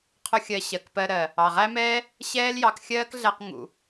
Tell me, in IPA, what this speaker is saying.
qʰ ʊ˦ xʲ ɜ˧ ɕ ɜ˨ k p ɜ˧ ɾ ɜ˨ | ɑ˨ ʁ æ˦ m ɛː˦ | ɕ ɛː˦ l j ɑ˧ k xʲ ɜː˦ k ɮ æ˧ q ŋ ṵ˨

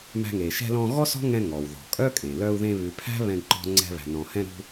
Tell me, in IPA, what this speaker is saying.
m æ̤˧ ŋ e˩ ʃ ɛ̤˧ l ɔ̃˧ ɣ ɔ˥ s ɔ̤˥ ŋ ɛ̃˧ ŋ ɔ˩ w ð ɔ̤˩ kʼ œ˥ kʼ ẽ˩ l œ˧ u̯ ð ẽ˧ β ʉ˩ pʰ æ̤˥ β ɛ̃˧ ɡ ǃ ɔ̤˧ ŋ͡ǀ ɛ̤˧ β æ̤˩ n ɔ̃˩ h ɛ̃˧ ɾ ṳ˧

